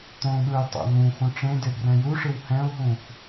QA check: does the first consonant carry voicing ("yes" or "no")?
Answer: no